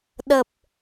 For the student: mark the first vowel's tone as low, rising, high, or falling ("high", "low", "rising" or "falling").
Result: low